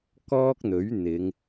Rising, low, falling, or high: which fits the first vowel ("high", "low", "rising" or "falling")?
high